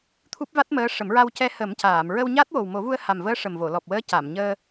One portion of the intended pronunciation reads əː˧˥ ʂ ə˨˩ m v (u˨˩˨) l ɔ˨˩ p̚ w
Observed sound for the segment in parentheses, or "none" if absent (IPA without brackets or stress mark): o˨˩˨